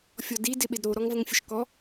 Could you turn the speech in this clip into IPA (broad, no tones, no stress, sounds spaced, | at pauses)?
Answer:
fʲ ɔ d i d ɪ ɓ ɪ d ɾ o ɾ ɔ ŋ v ə ŋ fʲ ə ʃ k ɔ